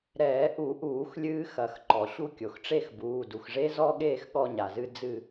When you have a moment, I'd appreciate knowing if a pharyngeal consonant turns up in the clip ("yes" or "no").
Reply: no